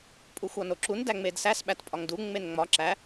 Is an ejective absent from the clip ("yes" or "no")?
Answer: no